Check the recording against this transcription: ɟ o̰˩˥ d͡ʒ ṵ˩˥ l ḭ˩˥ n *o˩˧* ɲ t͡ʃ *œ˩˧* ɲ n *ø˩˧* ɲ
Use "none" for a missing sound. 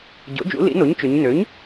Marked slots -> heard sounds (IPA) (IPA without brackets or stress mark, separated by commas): o˩˥, ø˩˧, ø˩˥